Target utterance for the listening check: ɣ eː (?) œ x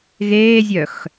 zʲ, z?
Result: zʲ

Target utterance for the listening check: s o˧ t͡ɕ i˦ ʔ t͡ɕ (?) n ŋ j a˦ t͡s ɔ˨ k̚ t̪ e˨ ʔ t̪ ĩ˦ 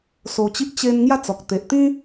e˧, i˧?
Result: e˧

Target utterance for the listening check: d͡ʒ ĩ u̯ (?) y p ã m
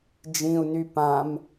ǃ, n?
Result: n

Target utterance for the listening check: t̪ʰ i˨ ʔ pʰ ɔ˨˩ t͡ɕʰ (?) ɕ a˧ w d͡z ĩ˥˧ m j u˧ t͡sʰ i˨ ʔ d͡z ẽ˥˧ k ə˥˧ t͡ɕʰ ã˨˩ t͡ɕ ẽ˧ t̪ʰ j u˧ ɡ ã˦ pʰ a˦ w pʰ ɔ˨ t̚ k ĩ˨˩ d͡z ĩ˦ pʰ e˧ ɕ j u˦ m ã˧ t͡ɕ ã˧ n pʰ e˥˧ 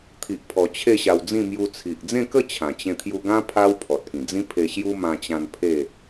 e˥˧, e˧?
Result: e˥˧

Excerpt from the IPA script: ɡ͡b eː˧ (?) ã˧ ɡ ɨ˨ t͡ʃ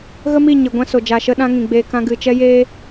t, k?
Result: k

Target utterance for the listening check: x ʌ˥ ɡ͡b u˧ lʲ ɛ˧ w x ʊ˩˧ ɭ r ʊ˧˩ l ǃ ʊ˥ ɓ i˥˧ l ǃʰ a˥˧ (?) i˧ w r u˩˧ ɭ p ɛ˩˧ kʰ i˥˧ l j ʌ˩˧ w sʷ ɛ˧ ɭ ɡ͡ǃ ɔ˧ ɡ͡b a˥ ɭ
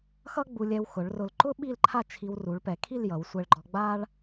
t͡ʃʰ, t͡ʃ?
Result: t͡ʃʰ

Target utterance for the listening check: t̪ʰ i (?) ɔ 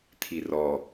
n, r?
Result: r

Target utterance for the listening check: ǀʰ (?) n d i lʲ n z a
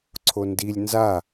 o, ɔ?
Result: o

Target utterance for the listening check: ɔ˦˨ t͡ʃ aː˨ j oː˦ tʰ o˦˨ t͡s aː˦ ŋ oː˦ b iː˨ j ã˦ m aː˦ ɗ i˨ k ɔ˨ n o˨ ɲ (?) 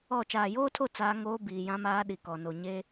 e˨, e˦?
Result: e˦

